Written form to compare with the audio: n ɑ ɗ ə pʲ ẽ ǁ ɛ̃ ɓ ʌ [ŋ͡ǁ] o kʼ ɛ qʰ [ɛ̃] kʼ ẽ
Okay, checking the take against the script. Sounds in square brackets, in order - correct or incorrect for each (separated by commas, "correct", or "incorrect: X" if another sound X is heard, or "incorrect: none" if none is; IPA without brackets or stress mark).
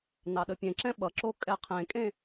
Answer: incorrect: ǁ, incorrect: ẽ